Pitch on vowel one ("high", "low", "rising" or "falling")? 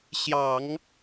low